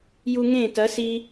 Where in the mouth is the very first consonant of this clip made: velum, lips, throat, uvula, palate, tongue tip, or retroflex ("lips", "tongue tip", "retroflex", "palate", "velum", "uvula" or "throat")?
palate